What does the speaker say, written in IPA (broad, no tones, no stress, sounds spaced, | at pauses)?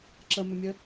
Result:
ǁ ə m ʏ mʲ ə